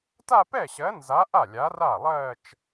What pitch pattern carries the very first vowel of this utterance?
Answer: falling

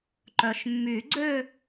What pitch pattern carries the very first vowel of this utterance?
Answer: low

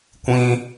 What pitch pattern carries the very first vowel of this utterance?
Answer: high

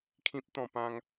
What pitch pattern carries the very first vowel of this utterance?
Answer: high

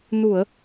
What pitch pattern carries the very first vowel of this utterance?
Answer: low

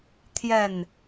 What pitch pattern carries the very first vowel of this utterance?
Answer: falling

